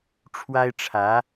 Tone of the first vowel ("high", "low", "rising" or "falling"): high